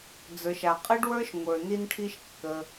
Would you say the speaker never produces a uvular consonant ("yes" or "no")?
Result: no